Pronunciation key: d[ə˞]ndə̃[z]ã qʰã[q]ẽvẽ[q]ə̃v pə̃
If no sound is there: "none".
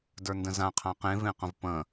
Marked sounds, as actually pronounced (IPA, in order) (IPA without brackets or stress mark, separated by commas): ə˞, z, q, q